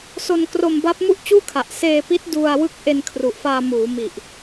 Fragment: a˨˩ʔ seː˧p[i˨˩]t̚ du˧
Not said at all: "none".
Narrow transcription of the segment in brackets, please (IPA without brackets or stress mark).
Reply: i˦˥